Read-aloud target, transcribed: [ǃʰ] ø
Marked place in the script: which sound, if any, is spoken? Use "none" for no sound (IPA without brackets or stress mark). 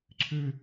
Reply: ǀʰ